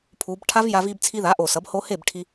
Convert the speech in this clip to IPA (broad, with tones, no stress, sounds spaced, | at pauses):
pʰ u˩˧ b ʈʰ a˦˥ v j a˧ v i˧ b t͡sʰ i˧ ð a˩˥ ʔ o˨˩ s ʌ˩˥ b h o˦˥ h e˥˩ b ʈʰ i˧